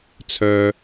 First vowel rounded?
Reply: yes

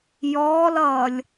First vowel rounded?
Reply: yes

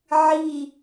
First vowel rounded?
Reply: no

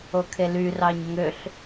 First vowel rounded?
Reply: yes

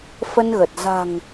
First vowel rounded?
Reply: no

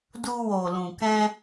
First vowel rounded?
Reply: yes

